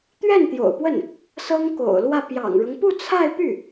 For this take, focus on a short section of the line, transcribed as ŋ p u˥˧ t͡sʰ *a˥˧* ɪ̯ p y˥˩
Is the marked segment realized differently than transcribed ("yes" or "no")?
no